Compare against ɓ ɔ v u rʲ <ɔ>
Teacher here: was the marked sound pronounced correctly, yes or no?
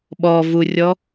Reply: yes